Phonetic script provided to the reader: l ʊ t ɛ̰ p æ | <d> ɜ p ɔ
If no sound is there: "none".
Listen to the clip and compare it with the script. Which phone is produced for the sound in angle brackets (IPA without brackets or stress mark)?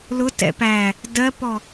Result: d